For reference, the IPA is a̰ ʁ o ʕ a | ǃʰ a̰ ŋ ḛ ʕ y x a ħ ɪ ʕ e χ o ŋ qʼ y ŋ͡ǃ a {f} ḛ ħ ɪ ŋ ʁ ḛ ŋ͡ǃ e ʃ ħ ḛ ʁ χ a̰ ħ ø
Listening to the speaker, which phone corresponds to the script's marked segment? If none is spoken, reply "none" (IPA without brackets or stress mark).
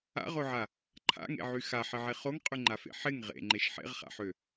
f